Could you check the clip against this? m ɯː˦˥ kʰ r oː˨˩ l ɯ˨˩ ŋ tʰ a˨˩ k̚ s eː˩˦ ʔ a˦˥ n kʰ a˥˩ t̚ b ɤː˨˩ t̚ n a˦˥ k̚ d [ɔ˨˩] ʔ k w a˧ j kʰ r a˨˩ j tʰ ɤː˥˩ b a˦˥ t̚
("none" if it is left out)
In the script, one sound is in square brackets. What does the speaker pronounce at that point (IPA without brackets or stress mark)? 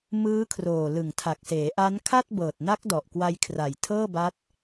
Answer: ɔ˨˩